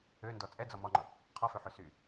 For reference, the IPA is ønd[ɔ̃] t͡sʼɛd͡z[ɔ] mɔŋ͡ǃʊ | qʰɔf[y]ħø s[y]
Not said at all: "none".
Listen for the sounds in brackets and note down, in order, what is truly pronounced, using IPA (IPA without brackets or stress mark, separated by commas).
ɔ, ɔ, ø, y